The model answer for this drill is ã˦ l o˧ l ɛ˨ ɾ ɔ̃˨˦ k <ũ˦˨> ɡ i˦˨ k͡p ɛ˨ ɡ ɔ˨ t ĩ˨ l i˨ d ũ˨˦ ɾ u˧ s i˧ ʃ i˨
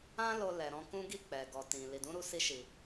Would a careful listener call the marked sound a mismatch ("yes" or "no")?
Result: yes